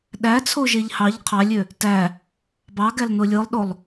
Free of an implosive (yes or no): no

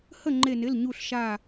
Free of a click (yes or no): no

